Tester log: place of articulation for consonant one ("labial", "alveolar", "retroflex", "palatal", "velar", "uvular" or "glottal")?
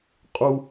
uvular